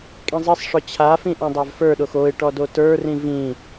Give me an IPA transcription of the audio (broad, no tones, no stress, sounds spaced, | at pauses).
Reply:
kʼ ĩ zˤ i sˤ ʂ ɔ t͡ɕʰ a f ĩ ʔ õ dˤ a v f ə˞ ɗ o x o ɪ̯ ʈ ɔ d o t ə˞ r ĩ v ĩ